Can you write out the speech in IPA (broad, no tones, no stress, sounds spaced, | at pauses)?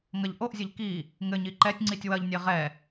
ŋ ɐ ʎ ʔ o ʔ zʲ ɘ ʎ k i | ŋ ɘ ɲ i ǃ ɛ tʲ ŋ͡ǀ i tʲ w ɐ ʎ nʲ e ʁ ɛ